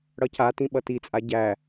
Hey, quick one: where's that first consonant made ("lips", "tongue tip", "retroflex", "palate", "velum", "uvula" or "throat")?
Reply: retroflex